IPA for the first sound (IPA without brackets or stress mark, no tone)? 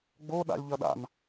ɡ͡b